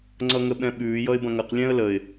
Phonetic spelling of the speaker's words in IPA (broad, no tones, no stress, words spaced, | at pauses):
ŋ͡ǀʌŋəɓɛ̃ɓʉː jʌɪ̯bɐ̃ŋɐq lʲɛ̃ə̯ləɪ̯